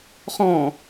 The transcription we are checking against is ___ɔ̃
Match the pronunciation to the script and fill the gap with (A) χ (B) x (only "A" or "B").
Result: A